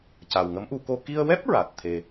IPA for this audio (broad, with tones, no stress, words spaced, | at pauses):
ca˨˩wŋə˧˥mʔu˨˩˦ko˧ ki˧ə̯wɛ˦˥p̚ ɹa˨˩t̚ t̪ʰe˧